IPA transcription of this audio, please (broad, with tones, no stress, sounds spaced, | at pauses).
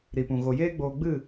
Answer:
ɾ i˨ p ũ˨ ɣ o˨ j eː˦ ɡ͡b oː˧ ɡ͡b ɨ˦˨